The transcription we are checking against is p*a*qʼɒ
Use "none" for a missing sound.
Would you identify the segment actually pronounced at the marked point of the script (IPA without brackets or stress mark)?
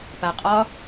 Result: a